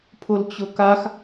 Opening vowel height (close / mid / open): close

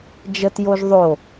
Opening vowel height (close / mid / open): mid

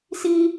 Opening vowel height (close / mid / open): close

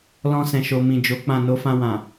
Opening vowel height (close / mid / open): mid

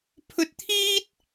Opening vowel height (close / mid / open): mid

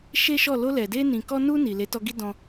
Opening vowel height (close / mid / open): mid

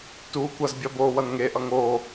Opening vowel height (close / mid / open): close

